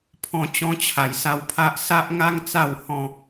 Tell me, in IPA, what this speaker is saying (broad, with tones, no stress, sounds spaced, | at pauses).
pʰ ɔ̃˧ t͡ɕ ɔ̃˧ t͡ɕʰ a˨˩ j s a˧ w pʰ a˦ ʔ s a˦ ʔ ŋ a˦ ŋ t͡s a˥˧ w h ɔ̃˥˧